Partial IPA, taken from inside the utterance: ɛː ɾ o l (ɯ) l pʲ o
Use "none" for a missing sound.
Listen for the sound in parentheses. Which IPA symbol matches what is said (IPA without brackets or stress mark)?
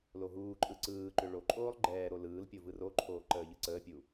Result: ɯː